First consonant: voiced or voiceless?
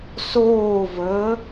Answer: voiceless